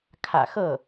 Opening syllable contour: low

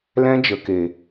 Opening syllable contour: high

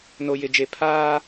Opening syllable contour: low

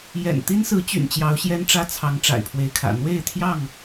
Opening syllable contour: low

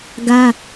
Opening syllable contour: high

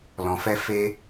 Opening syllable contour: low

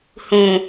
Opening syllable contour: low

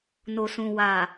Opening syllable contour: low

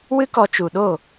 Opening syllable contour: high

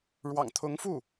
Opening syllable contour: low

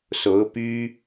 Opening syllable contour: rising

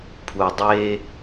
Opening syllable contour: low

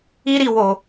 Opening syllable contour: high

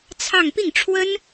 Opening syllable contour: falling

